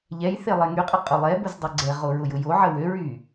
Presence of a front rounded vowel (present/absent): present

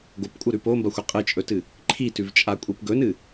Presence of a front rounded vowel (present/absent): absent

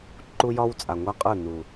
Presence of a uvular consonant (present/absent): present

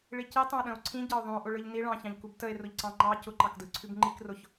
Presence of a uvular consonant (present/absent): absent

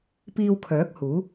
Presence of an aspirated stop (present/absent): present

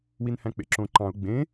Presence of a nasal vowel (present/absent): present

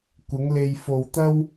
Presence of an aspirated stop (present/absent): absent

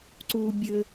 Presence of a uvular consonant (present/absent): absent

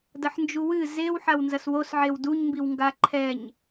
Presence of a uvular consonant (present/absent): absent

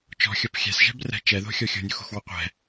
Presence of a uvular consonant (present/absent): present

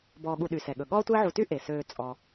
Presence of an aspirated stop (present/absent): absent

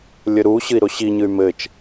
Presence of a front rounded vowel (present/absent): present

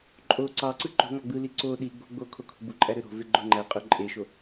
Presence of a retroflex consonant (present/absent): absent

